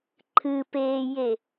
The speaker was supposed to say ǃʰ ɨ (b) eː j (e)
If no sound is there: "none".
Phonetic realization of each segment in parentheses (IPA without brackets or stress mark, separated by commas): p, e